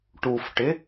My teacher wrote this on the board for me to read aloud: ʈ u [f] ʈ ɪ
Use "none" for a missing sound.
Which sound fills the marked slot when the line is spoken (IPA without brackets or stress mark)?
f